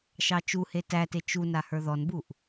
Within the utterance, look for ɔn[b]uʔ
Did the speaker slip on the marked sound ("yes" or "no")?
no